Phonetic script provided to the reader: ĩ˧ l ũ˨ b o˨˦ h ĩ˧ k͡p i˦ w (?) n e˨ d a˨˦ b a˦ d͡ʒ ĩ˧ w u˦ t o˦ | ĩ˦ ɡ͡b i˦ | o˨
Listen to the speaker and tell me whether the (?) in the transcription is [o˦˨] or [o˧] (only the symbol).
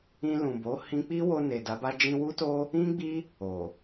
o˧